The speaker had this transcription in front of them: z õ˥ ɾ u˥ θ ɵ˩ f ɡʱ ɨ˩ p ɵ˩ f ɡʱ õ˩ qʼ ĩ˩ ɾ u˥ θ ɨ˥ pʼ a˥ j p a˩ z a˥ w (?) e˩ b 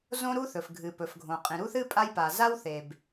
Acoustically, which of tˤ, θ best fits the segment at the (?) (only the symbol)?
θ